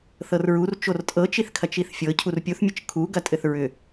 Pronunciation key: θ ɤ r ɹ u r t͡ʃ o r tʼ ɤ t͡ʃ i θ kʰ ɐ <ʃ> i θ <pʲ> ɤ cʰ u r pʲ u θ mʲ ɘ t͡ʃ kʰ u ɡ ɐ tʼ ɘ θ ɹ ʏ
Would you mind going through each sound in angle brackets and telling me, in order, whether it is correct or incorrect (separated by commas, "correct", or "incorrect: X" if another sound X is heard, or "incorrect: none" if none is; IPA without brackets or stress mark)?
incorrect: t͡ʃ, incorrect: fʲ